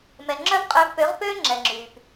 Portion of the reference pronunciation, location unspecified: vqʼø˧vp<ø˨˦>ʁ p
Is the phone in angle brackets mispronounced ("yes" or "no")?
no